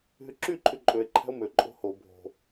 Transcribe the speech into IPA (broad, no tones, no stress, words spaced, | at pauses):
ɦyǁy ǃʰyǃʼøe̯ ǃʰæ̤o̯mø ǃʼo̤ho bʱo̤